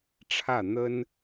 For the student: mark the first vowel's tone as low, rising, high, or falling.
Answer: falling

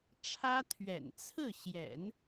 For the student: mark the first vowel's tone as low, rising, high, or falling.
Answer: high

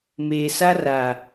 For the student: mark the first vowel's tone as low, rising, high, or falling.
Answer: low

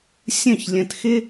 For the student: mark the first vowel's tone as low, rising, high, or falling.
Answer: falling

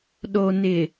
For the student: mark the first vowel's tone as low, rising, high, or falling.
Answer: low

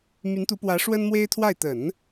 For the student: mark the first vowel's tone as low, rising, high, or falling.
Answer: rising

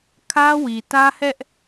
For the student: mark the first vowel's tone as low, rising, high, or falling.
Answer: high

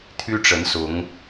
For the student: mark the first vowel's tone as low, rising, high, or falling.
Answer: high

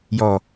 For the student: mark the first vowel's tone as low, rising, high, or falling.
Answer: low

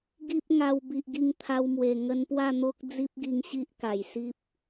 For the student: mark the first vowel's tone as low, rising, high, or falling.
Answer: high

